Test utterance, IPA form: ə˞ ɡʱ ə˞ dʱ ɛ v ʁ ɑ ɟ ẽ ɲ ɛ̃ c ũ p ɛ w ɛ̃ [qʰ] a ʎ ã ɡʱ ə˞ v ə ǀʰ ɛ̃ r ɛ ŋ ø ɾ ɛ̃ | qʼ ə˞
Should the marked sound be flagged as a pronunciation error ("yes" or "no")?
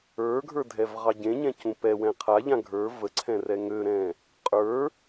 no